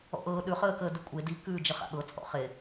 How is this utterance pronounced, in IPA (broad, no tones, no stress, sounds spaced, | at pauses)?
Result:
ɔ̰ ʔ ɤː ɗ ʉ χ əː k əː d ʉ kʷʼ e d i k ʉː d͡ʒ ə χ a̰ ɠ ɤ t͡sʼ ɔ̰ χ e